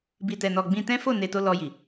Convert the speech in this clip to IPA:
bi˨tɛ˨nɔ˨ ɡ͡bĩ˧tɛ̃˦fo˦˨ ne˨ to˧lɔ˧ji˨

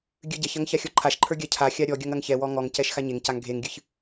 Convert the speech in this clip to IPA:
ɡʲɨɟɛçɐŋ çaxʲɔǃʰaʃǃʰə˞ ɡʲacʰaxʲa ɾʲɔ ɡʲɐŋɐŋçɛwɔ ŋɔŋcɛʃ xaɲeŋcaŋ ɡʱeŋɡʲɨç

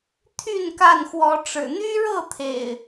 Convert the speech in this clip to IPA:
t̪ʰy˥˨nka˥˨nxwɔ˨˦ ʈ͡ʂɻ̩˨˩n̪y˦ɻɤ˥˨ t̪ʰḛ˨˩ɪ̯

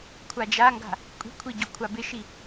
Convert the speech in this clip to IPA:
kʷʰad͡ʒaŋɡa̤ | kʷʼi̤kʷʰi ɟɵkʷʰabɪʃi

